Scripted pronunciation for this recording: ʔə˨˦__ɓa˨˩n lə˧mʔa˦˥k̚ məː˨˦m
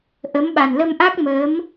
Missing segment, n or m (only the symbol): m